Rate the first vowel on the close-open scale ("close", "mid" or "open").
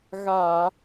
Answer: open